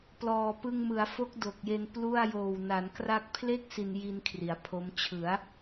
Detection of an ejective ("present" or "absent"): absent